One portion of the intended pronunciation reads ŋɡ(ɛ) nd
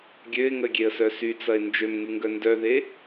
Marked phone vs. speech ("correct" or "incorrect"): incorrect